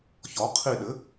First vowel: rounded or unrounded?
rounded